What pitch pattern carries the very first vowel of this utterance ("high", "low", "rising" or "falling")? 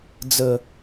low